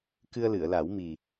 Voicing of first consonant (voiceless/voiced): voiceless